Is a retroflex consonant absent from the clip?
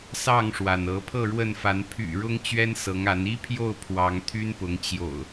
no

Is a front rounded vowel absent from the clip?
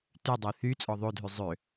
no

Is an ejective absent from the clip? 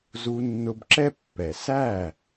yes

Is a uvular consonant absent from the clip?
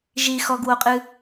no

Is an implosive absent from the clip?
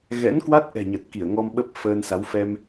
no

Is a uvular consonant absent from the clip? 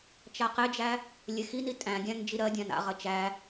no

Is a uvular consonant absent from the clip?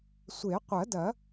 no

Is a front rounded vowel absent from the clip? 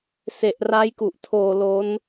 yes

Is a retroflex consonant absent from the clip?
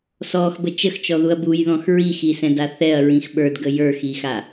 yes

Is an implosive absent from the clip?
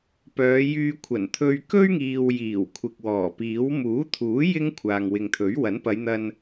yes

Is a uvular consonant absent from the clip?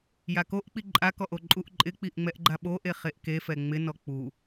no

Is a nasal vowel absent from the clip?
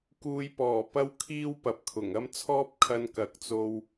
yes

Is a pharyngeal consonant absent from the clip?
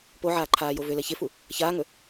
no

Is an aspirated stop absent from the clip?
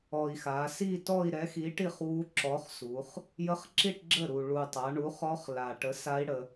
yes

